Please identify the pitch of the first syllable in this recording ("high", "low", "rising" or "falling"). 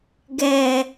low